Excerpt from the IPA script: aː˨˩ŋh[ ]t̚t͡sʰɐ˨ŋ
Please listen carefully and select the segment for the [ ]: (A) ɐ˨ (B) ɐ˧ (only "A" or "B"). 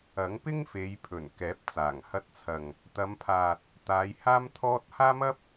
B